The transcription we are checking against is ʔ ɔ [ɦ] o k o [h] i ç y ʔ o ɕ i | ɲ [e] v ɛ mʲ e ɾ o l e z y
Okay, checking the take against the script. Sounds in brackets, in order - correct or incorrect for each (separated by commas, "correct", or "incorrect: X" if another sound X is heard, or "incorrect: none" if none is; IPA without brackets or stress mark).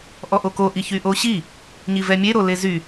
incorrect: ʔ, incorrect: ʔ, incorrect: i